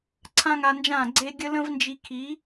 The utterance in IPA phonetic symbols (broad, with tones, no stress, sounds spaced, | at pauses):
ǀʰ ã˥ ŋ a˧ n d͡ʒ ãː˥˩ ɡ͡ǀ e˥ ɡʲ ə˥ l ə̃˥ v n d͡ʒ i˧ kʰ i˩˥